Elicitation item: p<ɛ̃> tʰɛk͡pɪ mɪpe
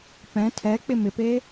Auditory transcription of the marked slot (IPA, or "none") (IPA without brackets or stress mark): ɛ̃